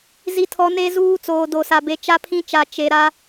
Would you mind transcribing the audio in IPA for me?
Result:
z i˨ tʰ ɔ˨ n e˦ z uː˦ t͡s oː˨ d o˨ s a˨ b e˨ t͡ʃ a˦ pʰ ĩ˦ t͡ʃ a˨ t͡ʃ e˨ ɾ a˦

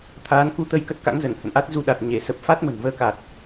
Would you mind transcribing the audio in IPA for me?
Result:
t̪ʰ aː˨˦ n k u˨˦ t̪ ə˧ j k ə˦˥ t̚ k a̰˧˥ ŋ z ə˧˩ n h ə̰˧˨ n ʔ a˦˥ t̚ z u˧ ɗ a˨˩ t̚ ɲ e˧˩ s ə˨˩ p̚ f a˦˥ t̚ m ə̤˨˩ n v əː˧ k a˨˩ t̚

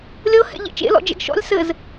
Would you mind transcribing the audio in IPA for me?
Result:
lʲ ɤ h ɛ̰ ʎ ɛ̰ t͡ʃ ḛ l ɔ̰ d͡ʒ ɛ̰ ɡ ʃ ɔ̰ lʲ s ɘ z

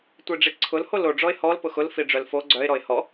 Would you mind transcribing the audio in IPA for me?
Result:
tʷ i ɖ͡ʐ i ǀʰ ʊ l h o l o ɖ͡ʐ ɔ ɪ̯ h ɔ l p ʊ x ʊ l f i ɖ͡ʐ œ l f o ɡ͡ǀ œ ɪ̯ ɾ ɔ ɪ̯ h ɔ

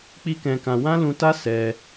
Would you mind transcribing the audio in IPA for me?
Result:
k͡p i˦ k ɛ̃˧ k ã˧ w ã˦ l ũ˧ t a˦ s ɛ˧

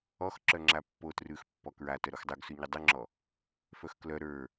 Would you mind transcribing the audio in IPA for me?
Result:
ɔ x ǁ œ ŋ͡ǁ a pː o t r ʉ x pː ɔ k ɹ a t œ ɾ o x dˤ o ɡ s ʉ ɲ ʉ dˤ ʉ ŋ͡ǁ ɔ | f œ x k l œ ɾ ə˞

